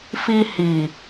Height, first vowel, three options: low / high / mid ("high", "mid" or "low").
high